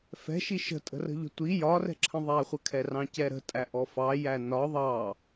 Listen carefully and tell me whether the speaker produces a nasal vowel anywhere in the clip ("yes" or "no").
yes